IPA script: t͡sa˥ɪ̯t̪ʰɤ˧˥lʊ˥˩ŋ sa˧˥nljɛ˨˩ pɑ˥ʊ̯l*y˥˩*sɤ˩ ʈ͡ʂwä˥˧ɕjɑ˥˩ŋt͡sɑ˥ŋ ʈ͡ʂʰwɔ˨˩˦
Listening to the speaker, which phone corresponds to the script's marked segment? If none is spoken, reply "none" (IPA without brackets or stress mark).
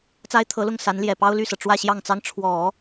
y˥˩